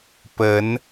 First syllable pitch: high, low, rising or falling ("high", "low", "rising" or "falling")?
rising